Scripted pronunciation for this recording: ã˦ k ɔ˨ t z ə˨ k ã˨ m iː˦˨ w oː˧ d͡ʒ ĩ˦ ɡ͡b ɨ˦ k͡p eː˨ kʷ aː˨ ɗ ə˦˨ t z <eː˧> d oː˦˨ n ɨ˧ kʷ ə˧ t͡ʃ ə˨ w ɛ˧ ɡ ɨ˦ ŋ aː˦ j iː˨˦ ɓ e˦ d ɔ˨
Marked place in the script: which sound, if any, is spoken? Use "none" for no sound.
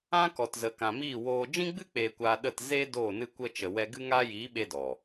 eː˦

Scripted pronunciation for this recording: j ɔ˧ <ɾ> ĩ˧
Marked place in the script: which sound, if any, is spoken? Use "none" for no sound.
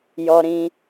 ɾ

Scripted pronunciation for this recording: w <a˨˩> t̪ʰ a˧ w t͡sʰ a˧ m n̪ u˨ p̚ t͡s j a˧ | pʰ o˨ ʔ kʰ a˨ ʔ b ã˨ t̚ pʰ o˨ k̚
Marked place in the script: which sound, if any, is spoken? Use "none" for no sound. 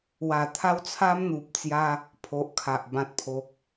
a˨˩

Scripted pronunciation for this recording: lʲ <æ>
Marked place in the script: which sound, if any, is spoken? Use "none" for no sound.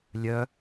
œ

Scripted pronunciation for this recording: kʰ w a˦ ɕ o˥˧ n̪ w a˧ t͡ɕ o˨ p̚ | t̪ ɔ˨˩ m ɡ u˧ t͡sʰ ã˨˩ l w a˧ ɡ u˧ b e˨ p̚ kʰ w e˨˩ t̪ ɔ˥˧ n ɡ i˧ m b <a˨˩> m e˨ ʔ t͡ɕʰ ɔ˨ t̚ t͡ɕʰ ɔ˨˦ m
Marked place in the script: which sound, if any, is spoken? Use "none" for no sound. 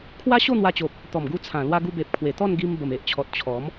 ə˨˩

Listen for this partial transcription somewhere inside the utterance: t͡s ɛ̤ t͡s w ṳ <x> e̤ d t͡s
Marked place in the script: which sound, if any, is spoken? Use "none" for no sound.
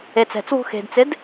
x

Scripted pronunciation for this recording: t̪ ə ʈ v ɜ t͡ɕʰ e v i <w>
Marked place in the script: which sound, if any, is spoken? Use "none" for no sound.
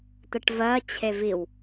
w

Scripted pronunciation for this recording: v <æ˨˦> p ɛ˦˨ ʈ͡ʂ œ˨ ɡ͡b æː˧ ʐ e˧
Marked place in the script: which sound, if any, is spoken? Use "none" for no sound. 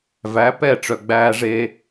æ˨˦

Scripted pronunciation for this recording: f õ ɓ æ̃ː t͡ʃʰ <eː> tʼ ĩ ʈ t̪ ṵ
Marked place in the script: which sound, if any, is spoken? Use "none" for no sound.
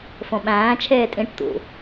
eː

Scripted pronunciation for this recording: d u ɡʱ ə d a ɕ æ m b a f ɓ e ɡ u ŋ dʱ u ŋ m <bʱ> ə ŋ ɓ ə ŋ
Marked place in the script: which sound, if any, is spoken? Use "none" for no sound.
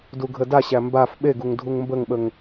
b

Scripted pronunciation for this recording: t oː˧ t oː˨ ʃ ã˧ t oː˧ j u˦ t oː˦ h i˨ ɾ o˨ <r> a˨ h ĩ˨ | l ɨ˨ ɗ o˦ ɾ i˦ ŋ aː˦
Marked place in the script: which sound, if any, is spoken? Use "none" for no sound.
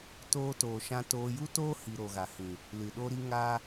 ɣ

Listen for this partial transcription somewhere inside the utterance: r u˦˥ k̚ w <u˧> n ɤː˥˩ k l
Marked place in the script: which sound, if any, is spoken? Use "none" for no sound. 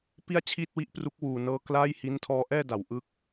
uː˧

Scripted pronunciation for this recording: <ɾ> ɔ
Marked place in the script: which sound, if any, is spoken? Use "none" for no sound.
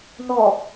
n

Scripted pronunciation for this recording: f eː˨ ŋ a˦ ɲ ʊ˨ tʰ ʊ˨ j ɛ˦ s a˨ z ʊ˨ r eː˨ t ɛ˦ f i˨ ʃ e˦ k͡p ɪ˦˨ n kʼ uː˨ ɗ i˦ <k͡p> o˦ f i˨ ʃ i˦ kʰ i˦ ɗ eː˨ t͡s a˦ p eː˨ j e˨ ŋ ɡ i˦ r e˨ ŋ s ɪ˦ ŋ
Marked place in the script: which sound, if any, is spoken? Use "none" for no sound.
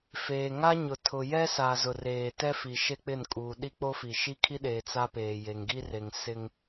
k͡p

